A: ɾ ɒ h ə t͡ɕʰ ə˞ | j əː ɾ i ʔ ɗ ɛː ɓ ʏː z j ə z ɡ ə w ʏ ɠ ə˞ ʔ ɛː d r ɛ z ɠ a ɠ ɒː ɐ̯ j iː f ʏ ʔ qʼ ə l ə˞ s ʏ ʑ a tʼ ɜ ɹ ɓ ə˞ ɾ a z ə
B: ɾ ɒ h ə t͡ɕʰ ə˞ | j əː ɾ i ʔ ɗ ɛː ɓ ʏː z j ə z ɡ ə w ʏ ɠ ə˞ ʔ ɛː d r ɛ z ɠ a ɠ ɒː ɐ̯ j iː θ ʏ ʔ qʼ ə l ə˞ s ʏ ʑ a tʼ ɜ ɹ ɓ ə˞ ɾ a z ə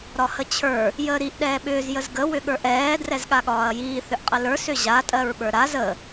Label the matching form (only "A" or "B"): B